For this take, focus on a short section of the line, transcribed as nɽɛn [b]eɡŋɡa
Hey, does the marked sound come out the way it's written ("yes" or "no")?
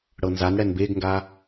yes